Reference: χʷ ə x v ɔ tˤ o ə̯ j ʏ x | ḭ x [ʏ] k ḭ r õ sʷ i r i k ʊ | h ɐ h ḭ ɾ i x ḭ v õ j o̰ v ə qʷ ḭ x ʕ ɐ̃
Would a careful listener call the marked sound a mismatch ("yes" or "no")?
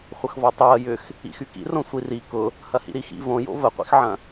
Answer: yes